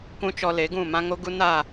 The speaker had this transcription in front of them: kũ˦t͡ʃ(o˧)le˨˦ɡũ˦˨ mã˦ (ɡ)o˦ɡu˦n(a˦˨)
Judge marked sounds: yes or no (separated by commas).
no, no, yes